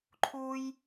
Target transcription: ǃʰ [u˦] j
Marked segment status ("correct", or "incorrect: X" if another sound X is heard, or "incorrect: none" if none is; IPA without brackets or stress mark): correct